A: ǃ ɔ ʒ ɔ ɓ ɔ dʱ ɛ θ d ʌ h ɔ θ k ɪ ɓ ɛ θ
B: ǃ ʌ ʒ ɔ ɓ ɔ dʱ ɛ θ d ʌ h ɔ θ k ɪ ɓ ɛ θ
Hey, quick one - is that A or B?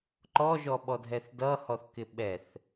A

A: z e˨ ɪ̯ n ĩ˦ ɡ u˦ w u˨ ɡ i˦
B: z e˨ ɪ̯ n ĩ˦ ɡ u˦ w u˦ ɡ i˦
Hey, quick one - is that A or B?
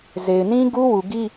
A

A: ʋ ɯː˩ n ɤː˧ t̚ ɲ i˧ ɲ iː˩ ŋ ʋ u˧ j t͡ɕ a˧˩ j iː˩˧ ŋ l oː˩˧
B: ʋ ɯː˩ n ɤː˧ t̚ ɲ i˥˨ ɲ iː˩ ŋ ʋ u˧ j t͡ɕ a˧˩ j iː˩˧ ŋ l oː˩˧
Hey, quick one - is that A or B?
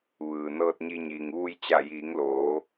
A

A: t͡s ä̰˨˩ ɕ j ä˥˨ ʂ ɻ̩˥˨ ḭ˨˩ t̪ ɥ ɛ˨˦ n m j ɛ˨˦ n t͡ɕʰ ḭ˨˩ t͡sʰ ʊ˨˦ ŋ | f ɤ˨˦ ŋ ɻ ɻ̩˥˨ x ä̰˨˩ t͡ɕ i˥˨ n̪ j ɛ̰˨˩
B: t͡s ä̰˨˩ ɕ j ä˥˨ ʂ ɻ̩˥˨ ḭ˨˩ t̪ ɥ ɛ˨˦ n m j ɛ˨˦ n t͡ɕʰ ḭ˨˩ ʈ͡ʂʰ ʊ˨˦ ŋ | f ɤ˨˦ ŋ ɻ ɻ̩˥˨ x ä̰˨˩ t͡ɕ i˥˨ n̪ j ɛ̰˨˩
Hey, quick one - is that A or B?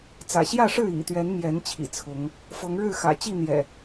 A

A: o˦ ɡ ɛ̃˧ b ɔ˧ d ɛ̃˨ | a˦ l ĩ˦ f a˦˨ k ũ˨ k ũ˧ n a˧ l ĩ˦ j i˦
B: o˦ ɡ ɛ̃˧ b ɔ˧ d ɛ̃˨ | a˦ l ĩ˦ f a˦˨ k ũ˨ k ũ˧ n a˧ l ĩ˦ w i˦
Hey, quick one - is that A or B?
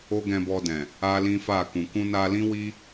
B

